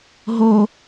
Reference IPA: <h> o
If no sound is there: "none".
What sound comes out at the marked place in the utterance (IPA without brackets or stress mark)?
ɦ